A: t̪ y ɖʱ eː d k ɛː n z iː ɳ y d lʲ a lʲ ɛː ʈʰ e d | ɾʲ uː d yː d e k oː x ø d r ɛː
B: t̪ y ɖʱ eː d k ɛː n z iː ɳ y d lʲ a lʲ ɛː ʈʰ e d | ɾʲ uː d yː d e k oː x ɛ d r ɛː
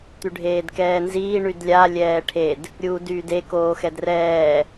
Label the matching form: B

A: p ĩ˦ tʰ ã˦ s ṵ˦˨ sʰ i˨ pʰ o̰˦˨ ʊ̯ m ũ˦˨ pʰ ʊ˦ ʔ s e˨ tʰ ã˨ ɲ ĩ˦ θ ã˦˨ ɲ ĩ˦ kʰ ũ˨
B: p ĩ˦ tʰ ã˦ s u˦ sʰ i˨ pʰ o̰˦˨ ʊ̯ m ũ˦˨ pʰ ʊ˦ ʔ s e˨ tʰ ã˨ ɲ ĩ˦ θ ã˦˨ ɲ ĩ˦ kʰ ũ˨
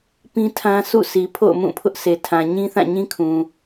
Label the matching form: A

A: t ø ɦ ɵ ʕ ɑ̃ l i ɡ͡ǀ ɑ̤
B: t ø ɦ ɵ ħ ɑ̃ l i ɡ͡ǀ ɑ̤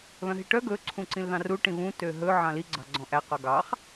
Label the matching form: A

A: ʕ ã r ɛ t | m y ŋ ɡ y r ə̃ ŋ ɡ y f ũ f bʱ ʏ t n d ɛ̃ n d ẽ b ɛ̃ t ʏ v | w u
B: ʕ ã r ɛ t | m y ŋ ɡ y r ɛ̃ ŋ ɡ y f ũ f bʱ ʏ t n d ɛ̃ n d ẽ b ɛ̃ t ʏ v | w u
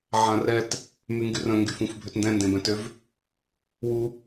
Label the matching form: A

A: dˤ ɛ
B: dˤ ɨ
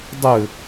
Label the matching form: B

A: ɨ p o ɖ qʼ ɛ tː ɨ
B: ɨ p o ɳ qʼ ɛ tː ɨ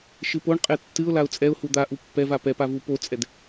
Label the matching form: B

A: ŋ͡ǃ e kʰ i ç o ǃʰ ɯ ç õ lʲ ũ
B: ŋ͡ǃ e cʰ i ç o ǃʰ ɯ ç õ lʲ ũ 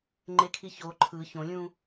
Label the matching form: A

